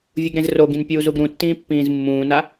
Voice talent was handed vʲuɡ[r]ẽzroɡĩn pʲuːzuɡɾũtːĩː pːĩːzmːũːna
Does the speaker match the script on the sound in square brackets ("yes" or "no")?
no